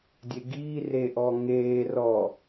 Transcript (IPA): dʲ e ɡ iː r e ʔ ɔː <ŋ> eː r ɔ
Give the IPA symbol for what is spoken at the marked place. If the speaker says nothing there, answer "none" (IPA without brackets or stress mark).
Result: ŋ